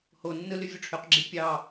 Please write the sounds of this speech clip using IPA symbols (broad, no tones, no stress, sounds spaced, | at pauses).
h o nː ɯ l y vʲ u ʈ͡ʂʰ ø q ɡ͡ǁ i pʲ ɑ